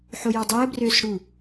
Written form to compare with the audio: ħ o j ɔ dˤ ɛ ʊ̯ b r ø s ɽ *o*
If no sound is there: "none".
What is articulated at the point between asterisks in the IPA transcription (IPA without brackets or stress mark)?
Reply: u